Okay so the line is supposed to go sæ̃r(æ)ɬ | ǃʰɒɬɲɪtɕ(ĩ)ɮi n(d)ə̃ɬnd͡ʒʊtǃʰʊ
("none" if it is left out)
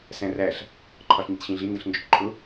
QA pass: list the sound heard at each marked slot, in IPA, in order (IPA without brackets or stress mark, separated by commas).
æ, ĩ, d